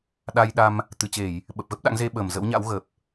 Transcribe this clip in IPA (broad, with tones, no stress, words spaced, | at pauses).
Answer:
ɗa˧jɗa˧m | t̪ɨ˨˩t͡ɕe˧˩˨j | ɓə˨˩p̚ɣə˦˥p̚ɗa̰˧˥ŋ ze˧ɓəː˧˩m zə̰˧˥wɲa̰˧˥w ɣə˨˩p̚